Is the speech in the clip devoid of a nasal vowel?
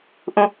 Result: no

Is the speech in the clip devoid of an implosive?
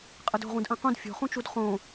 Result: yes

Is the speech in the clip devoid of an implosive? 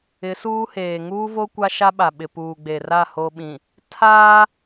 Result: no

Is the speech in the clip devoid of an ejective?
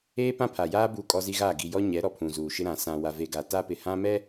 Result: no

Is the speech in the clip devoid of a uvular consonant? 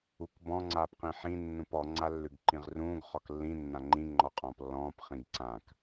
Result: no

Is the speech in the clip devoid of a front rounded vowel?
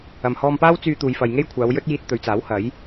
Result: no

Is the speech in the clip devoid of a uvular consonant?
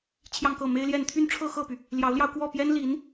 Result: yes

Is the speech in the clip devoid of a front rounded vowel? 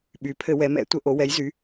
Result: no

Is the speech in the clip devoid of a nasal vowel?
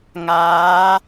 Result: yes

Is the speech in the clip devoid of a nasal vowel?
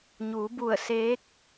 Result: yes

